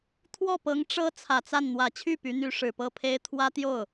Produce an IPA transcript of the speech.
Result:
t̪ʰ w ɔ˥˩ p ɤ˧˥ ŋ ʈ͡ʂ ɤ˥ t͡sʰ ä˨˩ t͡s a˥˩ n n̪ w ä˨˩ t͡ɕʰ y˥˩ p y˧˥ n̪ y˧˥ ʂ ɻ̩˨˩ p ɤ˥ pʰ e˥ ɪ̯ t̪ʰ w ä˥ t̪ j o˥˩ ʊ̯

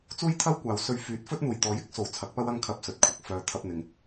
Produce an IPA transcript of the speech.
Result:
t͡s uː˥ j t̪ʰ ɐ˥ w kʷ aː˨ w s ɵ˧ ɥ f yː˨˥ t̚ f ɵ˥ t̚ n̪ uː˨˩ j t̪ ɔː˨˥ j ɪ˥ k̚ s o˨˩ w t͡sʰ ɐ˨˥ k̚ p ɐ˥ w ɐ˥ ŋ kʰ ɐ˧ p̚ s ɵ˨˥ t̚ kʷʰ ɐ˨ k̚ f œː˧ t̪ʰ ɐ˧ p̚ n̪ ɪ˨ ŋ

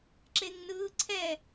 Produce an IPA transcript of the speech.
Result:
ǁ e ŋ n ɯː ǀʰ ɛ

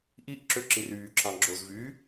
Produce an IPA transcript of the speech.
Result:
ʔ i ʔ ǁ ø ǁ i r yː ǁʰ ɑ̃ ɡ͡ǁ o z v yː

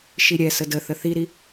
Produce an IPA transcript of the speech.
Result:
ʃ i ɾʲ ɛ s ə d ə θ ə θ i ɾ i

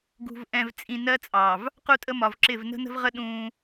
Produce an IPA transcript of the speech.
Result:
ɡ ṳ˨ v ʔ ɛ̃˨ v t͡sʼ ĩ˨ n ɜ˦ t͡sʼ ɑ˨ v | q u˦ tʼ ə˦ m ɒ˨ v ǁ ɪ˦˨ v n ə̤˦ n ə̤˦ v ʁ ə˦ ɗ ũ˦

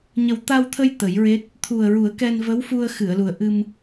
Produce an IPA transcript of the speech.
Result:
ɲ ə˨˩ w t̪ a˧ w t̪ʰ ə˧ j t̪ ə˨˩˦ j ɹ e˦˥ t̚ | t̪ʰ u˨˩ ə̯ ɹ u˨˩˦ ə̯ k ɛ˧ n v ə˧˥ w f u˧ ə̯ x ɨ˨˩˨ ə̯ l u˨˩ ə̯ ʔ ɨ˧ m

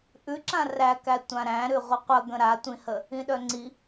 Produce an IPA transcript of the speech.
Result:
ʔ ʉ ǁ ã r æ k æ tʷ ã ɾ æ̃ ɾ ʉ ʁʷ ə qʷ ə ɡ ə̃ ɾ a tʷ ĩ h ə | ĩ ɗ œ ŋ͡ǀ i

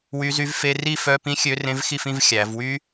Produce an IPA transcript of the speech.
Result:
w y˧˥ z y˧˥ v f e˧˥˧ r i˥˧ f œ˧˥˧ p ĩ˥ xʲ ø˧˥ r ẽ˧˥ v x i˥˧ f ĩ˧˥˧ v xʲ æ˩˧ v w y˥

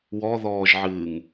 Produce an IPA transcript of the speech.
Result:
w ɔ ð ɔː ʒ ʕ ɨː ŋ

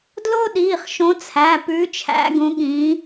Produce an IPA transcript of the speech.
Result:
d l o˥ ɗ iː˩˧˩ χ ʃ õ˨˦ t͡sʰ æ˩˧˩ p ʉː˨˦ t͡ʃʰ æ̰˨˦ ɡ ũ˨˦ ɠ ĩ˨˦

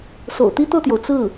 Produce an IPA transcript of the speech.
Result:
s o̰˨˩ ʊ̯ t̪ i˥ t̪ ɤ˥˩ t̪ j o˩ ʊ̯ t͡s ɹ̩˥˩

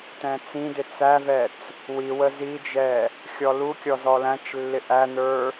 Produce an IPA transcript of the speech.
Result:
t ɛ̃ t͡s ĩ d ɪ t͡s æ v ɛ t͡s | w i w ə z i d͡ʒ ɛ | xʲ ɔ l u kʲ ɔ z ɔ l æ̃ t͡ʃ lː ɪ ʔ æ n ə˞

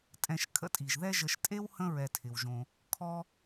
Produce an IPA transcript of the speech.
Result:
tʼ ɛ̃˨ ʃ kʰ ə̰˦ tʼ i˩ ʒ ð ɛ˦ ʒ ə˨ ʃ tʼ e˥ w h ə̃˦ ɹ ɛ˨ tʰ ɪ˩ w ʒ õ˨ | kʰ ɔ˥

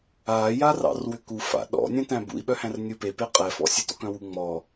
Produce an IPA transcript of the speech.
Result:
aː j a r ɑ̰ r w ʏ k u f a̰ ɗ ɔ̰ nʲ œ̃ t æ̃ b ṵ i̯ ɓ œ h æ̃ r nʲ u p e p e qʼ ɛ f ɔ̰ sʲ e t ɔ̰ k œ̃ w u ŋ͡m ɔ

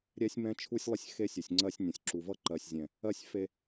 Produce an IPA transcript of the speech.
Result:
ɾʲ ɛ˦ sʲ m ɛ̃˦ t͡ʃʰ u˦ sʲ lˠ ə˦ sʲ x e˦ sʲ u˨ sʲ ŋ͡ǀ ɜ˦ sʲ nʲ ə̃˨ sʲ ǁ u˨ v ʌ˦ ǃ ɜ˨ sʲ zʲ ɛ̃˨ | ɜ˦ sʲ f e˦

